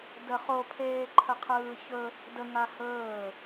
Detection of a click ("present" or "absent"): present